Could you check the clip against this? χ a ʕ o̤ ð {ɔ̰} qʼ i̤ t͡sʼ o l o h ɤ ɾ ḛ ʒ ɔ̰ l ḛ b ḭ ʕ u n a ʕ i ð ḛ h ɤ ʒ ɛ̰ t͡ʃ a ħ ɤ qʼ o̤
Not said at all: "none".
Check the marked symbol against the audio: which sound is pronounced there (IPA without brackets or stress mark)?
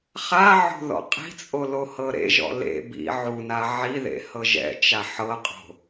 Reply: ɔ̰